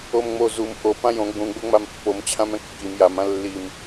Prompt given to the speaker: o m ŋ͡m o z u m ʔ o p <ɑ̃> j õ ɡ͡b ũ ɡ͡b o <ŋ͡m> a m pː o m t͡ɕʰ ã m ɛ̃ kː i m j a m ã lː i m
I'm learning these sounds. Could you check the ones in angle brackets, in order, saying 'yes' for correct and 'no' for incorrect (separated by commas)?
no, yes